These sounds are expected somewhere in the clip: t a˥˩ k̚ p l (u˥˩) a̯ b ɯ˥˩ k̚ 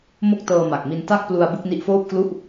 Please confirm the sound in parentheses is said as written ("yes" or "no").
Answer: no